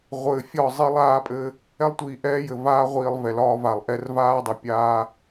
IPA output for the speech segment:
ʁʷ ɘː˨ fʲ ɒ˦˨ zˤ i˦ lˠ aː˦ pʼ ɘ˦ | ɛ˦ lˠ tʷ iː˨ ʔ ɛː˦ j ɘ˨ v aː˦ ʁʷ iː˨ lˠ v ɛ˨ l ɒː˦ v a˨ lˠ ʔ ɛ˦ r v aː˦ dˤ ɛ˨ pʲ aː˦

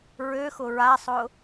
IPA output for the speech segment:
ɹ ø x ʊ ɹ a sˤ ʊ

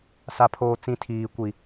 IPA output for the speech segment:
s a˦ pʰ oː˦ t͡s ĩ˦ tʰ iː˦ kʷ i˦

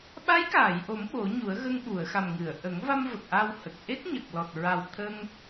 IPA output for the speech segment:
ɓ a˧˥ j k aː˨˩˨ j ʔ o˨˩˦ m ɓ o˨˩˦ ɲ u˨˩˦ ə̯ ɣ ə˧ ŋ ɓ u˨˩˨ ə̯ x a˨˩ m ŋ ɨ˨˩˨ ə̯ ʔ ə˨˩˦ ŋ v a˧ m v ə˨˩ k̚ ʔ a˧ w h ə˨˩ k̚ ʔ e˦˥ k̚ ɲ ə˨˩ k̚ l ɔ˨˩ t̚ ɹ a˨˩ w t̪ʰ ə˧ ŋ

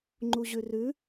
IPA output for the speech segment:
ŋ͡ǃ u ʑ ʉ r ʉ

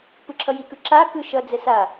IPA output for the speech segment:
p ɯ ǁʰ ʌ j i k ɯ ǁ a k ɯ ʃ ʌ d͡z ɛ s a

